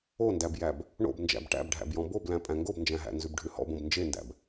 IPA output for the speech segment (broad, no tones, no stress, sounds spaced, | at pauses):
o n d æ b j æ b | ɳ o̰ b n d͡ʒ æ̰ b ʈ æ̰ b ɖʱ æ̰ b j ɔ̃ b o b l æ̃ pʼ æ̃ ŋ ɡ o b n d͡ʒ æ̃ ɦ æ̰ n z ʉ b ɖʱ ʉ h ɔ̰ b õ b n d͡ʒ e n d æ̰ b